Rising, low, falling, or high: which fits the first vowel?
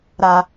low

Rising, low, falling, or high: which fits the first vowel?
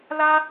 high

